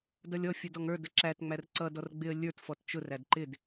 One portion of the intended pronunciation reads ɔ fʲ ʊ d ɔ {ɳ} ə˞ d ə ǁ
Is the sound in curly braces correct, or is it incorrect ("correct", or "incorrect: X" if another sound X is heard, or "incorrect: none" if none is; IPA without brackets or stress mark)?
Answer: incorrect: ŋ